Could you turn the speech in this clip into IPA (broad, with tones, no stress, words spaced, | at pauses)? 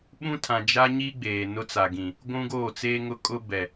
ɓũ˦tʰã˨d͡ʒa˦ɲi˦ ɡ͡beː˨nʊ˦t͡sa˨ɡĩ˨ | ɡʷũ˦ɡoː˦˨t͡seː˦ŋʊ˦ kʼʊ˦ bɛ˨